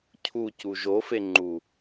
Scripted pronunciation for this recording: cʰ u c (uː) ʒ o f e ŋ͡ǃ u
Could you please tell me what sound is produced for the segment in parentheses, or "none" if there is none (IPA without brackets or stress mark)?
u